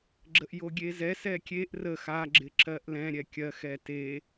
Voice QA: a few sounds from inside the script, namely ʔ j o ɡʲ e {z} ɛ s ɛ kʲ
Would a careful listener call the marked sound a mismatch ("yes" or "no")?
no